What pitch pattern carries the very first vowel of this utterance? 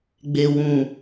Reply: low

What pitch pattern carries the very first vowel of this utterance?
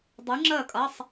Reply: rising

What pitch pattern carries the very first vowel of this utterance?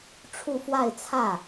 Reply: falling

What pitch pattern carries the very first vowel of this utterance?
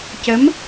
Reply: rising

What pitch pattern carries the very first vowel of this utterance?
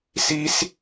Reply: high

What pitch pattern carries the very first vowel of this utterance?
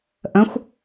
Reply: rising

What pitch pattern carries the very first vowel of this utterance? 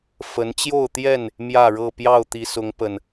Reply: rising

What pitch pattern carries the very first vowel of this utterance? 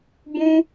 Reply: high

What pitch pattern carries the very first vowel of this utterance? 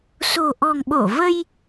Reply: low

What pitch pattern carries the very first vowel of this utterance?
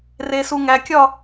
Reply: low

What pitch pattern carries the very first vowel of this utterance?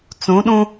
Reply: rising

